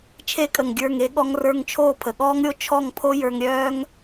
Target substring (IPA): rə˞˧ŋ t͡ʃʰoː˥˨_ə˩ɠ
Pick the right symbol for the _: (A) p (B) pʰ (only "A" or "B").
B